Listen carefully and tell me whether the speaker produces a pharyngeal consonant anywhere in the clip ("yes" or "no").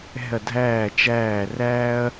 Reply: no